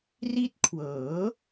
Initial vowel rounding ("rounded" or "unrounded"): unrounded